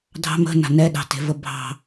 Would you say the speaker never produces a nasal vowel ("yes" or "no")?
yes